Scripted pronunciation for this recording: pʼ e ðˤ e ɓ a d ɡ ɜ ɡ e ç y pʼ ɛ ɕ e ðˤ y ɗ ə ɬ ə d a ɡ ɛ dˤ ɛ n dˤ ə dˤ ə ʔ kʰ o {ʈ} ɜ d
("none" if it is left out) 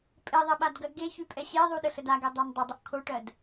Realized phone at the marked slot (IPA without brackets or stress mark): ʈ